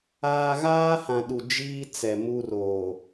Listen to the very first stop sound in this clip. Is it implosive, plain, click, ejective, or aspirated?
implosive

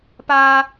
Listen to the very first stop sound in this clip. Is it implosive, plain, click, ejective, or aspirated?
plain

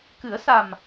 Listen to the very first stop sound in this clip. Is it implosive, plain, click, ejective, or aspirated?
plain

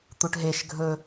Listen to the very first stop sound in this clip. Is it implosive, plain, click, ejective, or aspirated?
plain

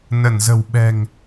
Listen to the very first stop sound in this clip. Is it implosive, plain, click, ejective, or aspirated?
implosive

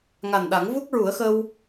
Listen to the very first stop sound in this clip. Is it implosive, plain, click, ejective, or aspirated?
implosive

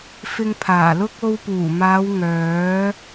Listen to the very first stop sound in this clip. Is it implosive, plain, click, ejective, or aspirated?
aspirated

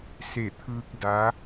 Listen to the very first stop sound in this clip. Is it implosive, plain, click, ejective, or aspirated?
aspirated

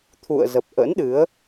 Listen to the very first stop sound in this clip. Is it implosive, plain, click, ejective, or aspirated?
aspirated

